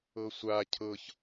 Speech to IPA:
ɤ sʷ a cʰ ɤ ç

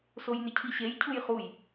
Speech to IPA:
s o j n ʏ cʰ i ɕ e j cʰ u j χ u j

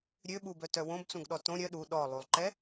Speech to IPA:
ɾʲ ø ɓ u b œ t œ w õ b t͡s ũ ɡ ɗ ɔ t õ ɾʲ œ ɗ u ɗ ɔ lˠ u lˠ ǃ ɛ

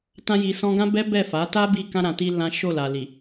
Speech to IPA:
t ã˦ j i˧ s ɔ̃˦ ɡ ã˦ b ɛ˦ b ɛ˦˨ f a˨˦ t a˦ b i˦˨ k ã˧ ɾ ã˨ t i˧ l ã˦ ʃ o˦˨ l a˨ l i˨

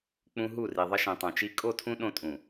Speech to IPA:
k͡p ũ˦ ɦ u˦˨ r i˨ ðˤ ə˦ ʃ ĩ˨ tˤ õ˨ t͡ʃ i˦ kʼ o˦˨ tʰ ũ˦ ɗ õ˦ tʼ ũ˨

